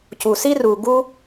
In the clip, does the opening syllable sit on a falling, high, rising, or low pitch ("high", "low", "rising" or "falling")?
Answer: low